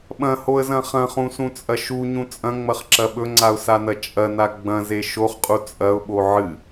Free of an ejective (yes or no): no